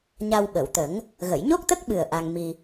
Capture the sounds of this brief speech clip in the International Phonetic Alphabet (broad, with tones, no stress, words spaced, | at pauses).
ɲa˧wɓə˨˩˨wt̪ə˨˩˦ŋ | ɣə˨˩˨jɲo˦˥k̚t̪ə˦˥k̚ɓɨ˨˩ə̯ ʔa˧ŋmi˧